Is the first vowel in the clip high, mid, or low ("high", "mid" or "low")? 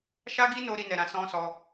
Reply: low